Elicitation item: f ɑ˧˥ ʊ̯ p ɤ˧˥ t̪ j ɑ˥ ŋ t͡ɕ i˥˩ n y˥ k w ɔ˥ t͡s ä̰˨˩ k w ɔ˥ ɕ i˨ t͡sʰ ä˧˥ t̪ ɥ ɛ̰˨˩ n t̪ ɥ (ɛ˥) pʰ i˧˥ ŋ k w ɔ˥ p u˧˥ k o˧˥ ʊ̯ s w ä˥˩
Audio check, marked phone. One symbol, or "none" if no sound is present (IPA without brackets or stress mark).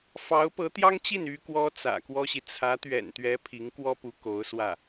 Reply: ɛ˧˥